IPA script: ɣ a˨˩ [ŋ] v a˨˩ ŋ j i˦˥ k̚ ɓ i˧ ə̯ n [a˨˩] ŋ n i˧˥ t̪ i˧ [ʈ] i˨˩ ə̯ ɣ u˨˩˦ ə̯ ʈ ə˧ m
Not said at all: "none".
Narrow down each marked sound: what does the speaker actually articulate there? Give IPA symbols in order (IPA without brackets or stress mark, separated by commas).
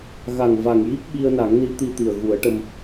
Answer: ŋ, a˨˩˦, t̪